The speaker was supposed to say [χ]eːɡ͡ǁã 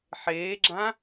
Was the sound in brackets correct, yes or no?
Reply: no